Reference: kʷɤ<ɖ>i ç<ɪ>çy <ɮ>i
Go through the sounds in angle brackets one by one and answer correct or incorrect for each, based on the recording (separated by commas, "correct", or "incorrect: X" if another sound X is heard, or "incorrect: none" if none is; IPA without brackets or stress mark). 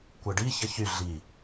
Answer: correct, incorrect: ə, correct